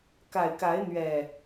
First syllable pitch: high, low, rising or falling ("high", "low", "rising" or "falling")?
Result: low